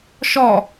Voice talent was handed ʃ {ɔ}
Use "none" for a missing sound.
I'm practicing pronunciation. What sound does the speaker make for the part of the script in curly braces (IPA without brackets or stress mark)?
ɔ